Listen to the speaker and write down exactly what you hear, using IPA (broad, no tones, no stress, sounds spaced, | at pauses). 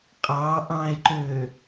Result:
qʼ ɑ ʔ ɑ̃ e̯ ǃ ø